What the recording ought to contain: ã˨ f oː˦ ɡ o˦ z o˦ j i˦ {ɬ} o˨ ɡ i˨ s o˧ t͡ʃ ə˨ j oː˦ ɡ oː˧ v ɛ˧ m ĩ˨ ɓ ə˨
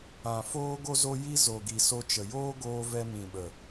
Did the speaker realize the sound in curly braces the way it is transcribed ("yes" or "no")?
no